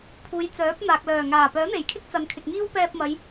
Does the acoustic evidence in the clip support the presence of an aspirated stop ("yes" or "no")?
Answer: yes